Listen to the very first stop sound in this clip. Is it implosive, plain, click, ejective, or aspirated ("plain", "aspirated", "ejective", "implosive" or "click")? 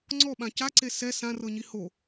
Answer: click